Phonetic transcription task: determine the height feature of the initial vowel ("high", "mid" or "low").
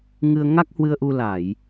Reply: high